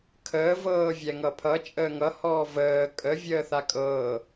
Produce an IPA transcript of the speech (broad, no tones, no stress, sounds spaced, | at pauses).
kʰ əː v ɤː vʲ ɛ ŋ ʌ pʰ ʌ t͡ʃʼ əː ŋ ʌ h ɔː v əː kʼ ə vʲ əː θ a kʼ ɤː